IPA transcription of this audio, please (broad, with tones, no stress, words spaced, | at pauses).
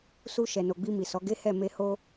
su˧ ʃɛ˨no˨ɡ͡bi˧ mi˨sɔ˨˦ɡe˦ hɛ˦˨me˧ ho˦